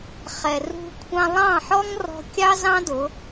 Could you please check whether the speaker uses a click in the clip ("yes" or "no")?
no